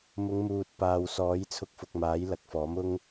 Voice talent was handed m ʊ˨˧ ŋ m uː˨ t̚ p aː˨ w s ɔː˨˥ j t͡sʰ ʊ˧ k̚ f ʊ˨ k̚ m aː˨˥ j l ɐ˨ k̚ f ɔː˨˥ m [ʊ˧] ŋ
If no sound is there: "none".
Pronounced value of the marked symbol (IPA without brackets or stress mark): ʊ˧